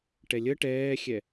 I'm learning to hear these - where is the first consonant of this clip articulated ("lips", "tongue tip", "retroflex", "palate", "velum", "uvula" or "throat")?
retroflex